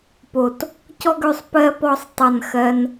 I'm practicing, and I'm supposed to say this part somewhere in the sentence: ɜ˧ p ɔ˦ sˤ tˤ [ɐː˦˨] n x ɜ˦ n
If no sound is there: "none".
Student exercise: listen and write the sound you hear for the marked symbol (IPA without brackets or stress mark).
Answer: ɐ˦˨